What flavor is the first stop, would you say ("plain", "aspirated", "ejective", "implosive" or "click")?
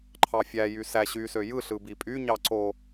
click